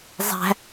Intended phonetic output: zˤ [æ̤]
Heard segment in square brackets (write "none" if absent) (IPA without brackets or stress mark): æ̤